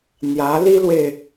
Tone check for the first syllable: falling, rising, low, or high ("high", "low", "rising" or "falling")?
rising